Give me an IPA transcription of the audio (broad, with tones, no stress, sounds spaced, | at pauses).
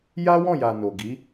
j a˦ w ɔ̃˦˨ j a˨ n o˨ ɡ i˨˦